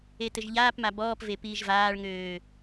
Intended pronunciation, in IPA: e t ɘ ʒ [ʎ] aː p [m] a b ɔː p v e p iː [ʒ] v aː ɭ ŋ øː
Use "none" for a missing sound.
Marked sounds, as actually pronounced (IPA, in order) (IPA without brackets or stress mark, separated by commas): ʎ, m, ʒ